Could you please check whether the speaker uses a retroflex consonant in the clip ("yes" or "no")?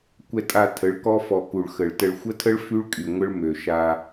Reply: yes